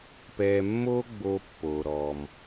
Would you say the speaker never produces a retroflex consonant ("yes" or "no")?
yes